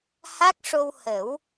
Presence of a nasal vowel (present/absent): absent